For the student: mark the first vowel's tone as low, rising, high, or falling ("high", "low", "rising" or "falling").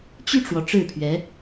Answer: falling